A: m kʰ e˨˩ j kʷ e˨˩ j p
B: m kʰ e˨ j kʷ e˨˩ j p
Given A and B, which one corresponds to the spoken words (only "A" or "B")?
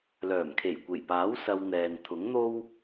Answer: A